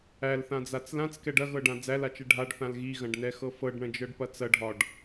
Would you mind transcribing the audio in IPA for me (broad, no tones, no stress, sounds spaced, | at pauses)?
æ l θ ã d͡z a t͡s l ã t͡s k ɛ ɖ ɐ ɣ ɤ ɖ ã d͡z æ l a t͡ʃ ɛ ɖʱ a ɖ θ ã l ɣ i ɣ ɐ̃ ɖ n ɛ x ɤ f ɤ ɖ ɳ ɐ̃ d͡ʒ ɤ ɖ p ɐ t͡s ɐ ɖʱ ɒ ɖ